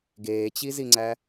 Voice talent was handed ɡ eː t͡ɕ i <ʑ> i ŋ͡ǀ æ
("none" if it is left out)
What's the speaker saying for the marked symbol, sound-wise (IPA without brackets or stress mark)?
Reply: z